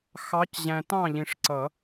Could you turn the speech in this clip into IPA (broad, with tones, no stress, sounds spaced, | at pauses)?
x ɑ˨˦ c ʑ æ̃˨ t ɑ̃˥˩ ʎ ĩ˨ ʂ ǀ ʌ˨˩˦